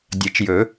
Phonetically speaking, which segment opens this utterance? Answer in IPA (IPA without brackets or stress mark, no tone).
dʲ